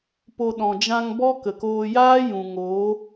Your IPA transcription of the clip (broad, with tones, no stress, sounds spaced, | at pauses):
p o˧ ɗ ɔ̃˨ d͡ʒ ã˧ ŋ b ɔ˦ k ə˨ k oː˧ j aː˦ j ũ˨ ŋ oː˨˦